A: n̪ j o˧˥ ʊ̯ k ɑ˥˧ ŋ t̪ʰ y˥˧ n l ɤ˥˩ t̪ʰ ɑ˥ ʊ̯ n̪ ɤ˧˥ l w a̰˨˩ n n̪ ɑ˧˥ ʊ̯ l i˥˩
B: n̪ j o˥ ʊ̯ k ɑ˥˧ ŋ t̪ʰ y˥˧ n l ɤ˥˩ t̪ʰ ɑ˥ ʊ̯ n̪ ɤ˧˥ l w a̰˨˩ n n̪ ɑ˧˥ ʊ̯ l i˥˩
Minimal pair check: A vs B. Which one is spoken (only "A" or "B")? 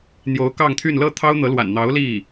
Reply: A